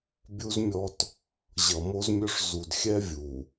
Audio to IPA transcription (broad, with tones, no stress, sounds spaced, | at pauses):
bʲ u˦ z mʲ ɔ˦ t | ʑ ʌ˨ m o˦ z mʲ ɵ˦ ʂ z u˨ d xʲ ɛ˦ vʲ u˨